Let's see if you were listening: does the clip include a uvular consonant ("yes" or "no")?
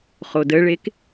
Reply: yes